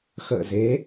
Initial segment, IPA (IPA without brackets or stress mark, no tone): x